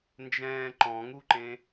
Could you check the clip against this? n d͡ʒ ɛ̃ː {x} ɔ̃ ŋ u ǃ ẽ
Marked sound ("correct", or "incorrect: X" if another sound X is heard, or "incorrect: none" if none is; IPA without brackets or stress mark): incorrect: ǃ